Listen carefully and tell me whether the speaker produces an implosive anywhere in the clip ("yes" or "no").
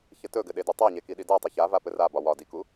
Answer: yes